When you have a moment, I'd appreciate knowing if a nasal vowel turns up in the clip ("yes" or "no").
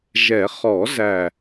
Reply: no